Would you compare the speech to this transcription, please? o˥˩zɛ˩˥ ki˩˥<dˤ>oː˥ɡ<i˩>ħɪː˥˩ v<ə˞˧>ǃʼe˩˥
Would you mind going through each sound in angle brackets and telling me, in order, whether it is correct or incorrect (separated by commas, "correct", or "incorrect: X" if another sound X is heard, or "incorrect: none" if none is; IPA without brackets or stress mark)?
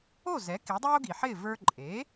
correct, correct, correct